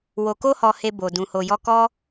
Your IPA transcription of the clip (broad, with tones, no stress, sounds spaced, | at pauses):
w o˨ k o˧ h ɔ˨ h e˧ b o˨ d ũ˨ h o˨ j ɔ˧ k ɔ˦